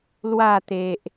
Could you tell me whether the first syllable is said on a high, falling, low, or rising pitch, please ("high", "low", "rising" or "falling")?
falling